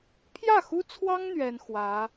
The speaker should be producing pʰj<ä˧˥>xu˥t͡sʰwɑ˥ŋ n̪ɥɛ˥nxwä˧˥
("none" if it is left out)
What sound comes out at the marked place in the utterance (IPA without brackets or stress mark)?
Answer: ä˥˩